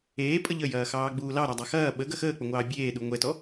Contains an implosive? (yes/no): yes